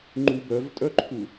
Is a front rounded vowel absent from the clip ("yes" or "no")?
no